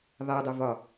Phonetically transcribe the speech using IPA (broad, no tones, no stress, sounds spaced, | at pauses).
ðˤ ɛ dˤ ə v ɒ